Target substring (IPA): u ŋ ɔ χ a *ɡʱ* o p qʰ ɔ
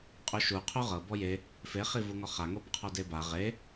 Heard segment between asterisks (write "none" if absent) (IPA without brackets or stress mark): ŋ